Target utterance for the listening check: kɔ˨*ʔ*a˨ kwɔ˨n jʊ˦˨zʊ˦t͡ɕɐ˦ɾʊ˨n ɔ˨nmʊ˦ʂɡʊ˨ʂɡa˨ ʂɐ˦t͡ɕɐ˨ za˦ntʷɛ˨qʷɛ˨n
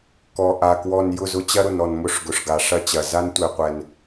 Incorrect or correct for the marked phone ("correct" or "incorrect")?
correct